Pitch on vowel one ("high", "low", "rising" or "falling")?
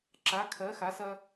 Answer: rising